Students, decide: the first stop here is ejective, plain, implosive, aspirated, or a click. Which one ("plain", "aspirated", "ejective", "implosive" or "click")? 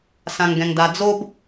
plain